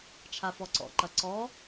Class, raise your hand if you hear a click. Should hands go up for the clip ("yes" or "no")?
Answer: yes